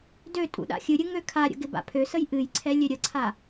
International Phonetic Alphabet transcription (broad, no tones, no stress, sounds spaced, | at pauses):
d ø tʼ ṵ ɗ a̰ xʲ ɨ ɾʲ ɨ ŋ ø kʰ a ɾʲ ə̰ ɡ ɪ b a̰ pʰ ø s ə j ʔ ɨ j ǀʰ ɛ lʲ ø ɾʲ ə ǀʰ a